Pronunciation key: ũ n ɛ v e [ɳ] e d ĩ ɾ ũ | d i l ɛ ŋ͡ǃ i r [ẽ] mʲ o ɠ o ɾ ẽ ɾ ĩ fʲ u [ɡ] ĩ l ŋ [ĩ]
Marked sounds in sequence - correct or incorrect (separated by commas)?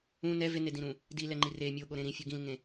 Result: incorrect, incorrect, correct, incorrect